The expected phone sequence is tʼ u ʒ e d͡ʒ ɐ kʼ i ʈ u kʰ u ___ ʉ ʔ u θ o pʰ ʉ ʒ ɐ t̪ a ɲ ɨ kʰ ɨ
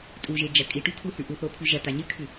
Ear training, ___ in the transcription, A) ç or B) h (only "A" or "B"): B